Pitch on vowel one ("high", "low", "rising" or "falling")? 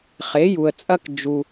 rising